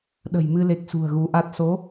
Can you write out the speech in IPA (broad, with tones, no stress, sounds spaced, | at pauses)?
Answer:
ɗ ə̤˨˩ j m ɨ˧ l e˨˩ k̚ s ṳ˨˩ ə̯ ɣ u˨˦ ʔ a˦˥ t̚ s o˨˦